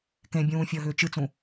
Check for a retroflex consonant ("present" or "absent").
absent